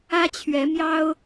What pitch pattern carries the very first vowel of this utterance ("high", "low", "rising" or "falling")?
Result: high